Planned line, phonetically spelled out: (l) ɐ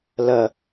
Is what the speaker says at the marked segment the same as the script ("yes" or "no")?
yes